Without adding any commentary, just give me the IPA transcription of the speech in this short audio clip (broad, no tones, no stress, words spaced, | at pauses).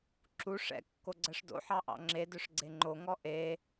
ǁu ʂɛ̰ kːoɡ͡ǀɜʂdo̰ ħɑʔɑ̰ŋ͡ǁe dœʂɡ͡ǀeŋ͡ǃo ŋɔʔe